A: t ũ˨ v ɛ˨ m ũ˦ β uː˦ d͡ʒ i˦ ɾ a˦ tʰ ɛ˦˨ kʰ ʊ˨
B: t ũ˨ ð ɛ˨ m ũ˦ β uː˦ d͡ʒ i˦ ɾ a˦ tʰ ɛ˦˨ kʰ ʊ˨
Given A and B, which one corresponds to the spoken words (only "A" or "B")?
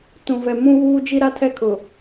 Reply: A